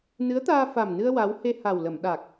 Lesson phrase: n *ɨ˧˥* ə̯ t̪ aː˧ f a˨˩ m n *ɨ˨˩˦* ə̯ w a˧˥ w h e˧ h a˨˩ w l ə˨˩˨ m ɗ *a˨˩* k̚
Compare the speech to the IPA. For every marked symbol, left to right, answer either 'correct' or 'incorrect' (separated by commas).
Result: correct, incorrect, correct